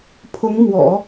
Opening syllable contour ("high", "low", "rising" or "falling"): rising